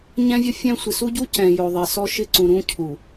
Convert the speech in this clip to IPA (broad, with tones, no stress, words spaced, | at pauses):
ɲɛ̃˦vʲʊ˦ fʲɛ̃˦ sʷɪ˨su˦ɟu˦ cɛ̃˨jo˨ ðˤe˨sɔ˦ʃɪ˦ǀũ˨ ɾũ˦cʰu˨